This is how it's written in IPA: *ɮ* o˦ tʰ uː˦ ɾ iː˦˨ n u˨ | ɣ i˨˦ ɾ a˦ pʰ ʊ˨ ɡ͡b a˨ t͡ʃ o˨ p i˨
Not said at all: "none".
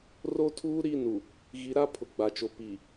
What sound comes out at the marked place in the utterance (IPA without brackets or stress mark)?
r